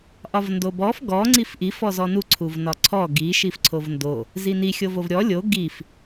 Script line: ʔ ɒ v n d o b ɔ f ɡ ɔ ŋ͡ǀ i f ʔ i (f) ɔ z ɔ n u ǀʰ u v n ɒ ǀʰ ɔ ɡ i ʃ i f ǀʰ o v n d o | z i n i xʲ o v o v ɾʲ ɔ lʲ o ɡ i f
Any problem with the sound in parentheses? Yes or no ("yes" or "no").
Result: no